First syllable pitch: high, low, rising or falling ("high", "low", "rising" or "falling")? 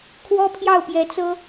high